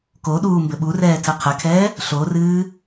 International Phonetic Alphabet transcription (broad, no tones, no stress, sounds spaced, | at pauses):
k o ɗ uː m b ɘ ɓ u r ɛː tʰ ɘ qʰ ɘ kʰ ɛː | ɬ o r ɨː